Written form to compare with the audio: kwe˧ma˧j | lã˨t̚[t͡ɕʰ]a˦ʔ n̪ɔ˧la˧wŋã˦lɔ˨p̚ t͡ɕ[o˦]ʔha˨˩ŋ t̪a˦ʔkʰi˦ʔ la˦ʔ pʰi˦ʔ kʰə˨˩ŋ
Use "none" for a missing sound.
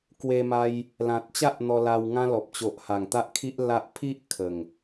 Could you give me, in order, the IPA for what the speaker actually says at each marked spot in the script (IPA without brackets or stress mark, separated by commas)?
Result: t͡ɕ, o˨